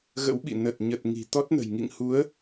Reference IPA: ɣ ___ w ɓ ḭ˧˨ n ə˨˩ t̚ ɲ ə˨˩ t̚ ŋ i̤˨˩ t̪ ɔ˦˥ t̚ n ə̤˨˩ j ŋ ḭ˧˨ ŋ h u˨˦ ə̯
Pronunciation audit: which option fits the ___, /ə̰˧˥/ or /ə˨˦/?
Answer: ə̰˧˥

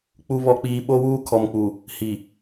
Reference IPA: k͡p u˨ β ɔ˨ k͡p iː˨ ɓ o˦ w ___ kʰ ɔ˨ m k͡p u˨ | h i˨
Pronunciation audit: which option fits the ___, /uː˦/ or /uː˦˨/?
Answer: uː˦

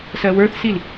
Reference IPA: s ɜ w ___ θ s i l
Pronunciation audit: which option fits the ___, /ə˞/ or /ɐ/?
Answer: ə˞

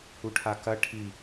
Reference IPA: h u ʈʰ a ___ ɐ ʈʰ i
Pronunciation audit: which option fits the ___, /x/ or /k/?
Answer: k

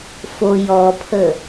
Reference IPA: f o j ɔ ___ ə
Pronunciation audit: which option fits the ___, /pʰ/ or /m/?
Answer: pʰ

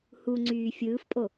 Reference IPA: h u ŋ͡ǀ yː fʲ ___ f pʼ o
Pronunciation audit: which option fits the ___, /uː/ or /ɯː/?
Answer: ɯː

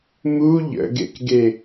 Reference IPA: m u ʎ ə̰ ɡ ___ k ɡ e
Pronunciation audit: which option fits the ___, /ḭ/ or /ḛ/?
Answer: ḛ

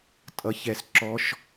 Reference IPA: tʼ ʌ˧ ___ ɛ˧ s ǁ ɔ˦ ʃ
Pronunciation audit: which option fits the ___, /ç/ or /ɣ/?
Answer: ç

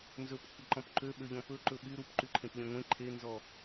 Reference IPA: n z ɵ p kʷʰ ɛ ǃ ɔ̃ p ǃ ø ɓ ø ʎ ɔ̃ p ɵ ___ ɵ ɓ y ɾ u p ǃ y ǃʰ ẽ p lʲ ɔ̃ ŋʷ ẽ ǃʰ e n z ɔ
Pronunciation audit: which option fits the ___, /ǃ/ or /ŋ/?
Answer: ǃ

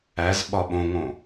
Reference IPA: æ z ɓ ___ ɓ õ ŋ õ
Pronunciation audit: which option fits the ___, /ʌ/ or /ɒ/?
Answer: ɒ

